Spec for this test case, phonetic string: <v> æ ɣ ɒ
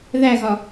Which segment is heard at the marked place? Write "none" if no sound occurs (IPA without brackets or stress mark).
ð